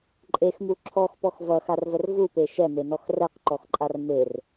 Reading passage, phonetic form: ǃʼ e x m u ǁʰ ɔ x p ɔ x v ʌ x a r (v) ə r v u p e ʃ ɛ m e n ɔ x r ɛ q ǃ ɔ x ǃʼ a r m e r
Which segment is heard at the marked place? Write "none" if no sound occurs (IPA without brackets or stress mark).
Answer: v